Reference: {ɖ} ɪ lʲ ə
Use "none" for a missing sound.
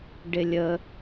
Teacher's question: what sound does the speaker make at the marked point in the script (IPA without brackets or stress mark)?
ɖ